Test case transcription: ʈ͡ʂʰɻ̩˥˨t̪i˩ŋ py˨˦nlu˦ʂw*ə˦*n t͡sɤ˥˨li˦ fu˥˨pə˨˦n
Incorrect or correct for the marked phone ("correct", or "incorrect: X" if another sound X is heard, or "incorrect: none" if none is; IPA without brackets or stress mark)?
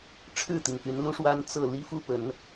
incorrect: a˦